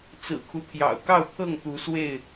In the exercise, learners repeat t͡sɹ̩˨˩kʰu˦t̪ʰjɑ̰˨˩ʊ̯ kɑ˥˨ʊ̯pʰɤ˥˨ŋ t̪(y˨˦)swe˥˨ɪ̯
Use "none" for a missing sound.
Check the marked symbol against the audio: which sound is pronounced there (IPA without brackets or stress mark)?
u˨˦